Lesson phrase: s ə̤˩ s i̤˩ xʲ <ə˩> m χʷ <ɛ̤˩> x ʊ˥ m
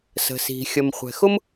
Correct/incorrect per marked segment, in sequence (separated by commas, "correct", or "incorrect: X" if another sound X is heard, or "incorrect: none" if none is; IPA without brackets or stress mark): correct, correct